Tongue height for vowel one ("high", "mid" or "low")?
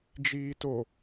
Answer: high